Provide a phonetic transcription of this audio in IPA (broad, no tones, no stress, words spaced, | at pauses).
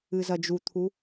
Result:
ɨzɐd͡ʒut̪ʰu